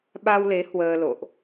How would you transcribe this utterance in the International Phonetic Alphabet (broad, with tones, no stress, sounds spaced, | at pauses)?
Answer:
ɓ a˧ w l e˨˦ h w əː˧ l o̰˧˨ ʔ